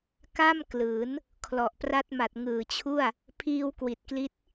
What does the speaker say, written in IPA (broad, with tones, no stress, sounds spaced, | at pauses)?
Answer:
k a˥˩ m k l ɯː˩˦ n | kʰ l ɔ˨˩ ʔ p r a˦˥ t̚ m a˨˩ t̚ ŋ ɯː˨˩ t͡ɕʰ u˥˩ a̯ | pʰ iː˧ w k w i˨˩ t̚ k l i˦˥ t̚